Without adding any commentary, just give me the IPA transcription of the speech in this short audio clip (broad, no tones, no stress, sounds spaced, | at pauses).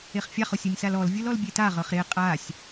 e χ fʲ a χ o sʲ ɯ nʲ s a l ɔ l vʲ ɯ l ɔ l bʲ e t a ʁ ɤ χ ɾ e qʼ a sʲ